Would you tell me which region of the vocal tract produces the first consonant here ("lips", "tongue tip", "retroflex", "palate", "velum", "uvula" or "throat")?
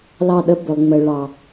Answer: tongue tip